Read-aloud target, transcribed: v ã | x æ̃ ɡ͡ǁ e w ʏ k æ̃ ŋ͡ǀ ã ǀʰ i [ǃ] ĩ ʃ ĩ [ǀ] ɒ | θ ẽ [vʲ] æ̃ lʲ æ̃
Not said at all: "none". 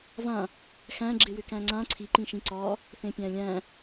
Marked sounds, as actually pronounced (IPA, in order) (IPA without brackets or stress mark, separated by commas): ǃ, ǀ, pʲ